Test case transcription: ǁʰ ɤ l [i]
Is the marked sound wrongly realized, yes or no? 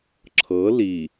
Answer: no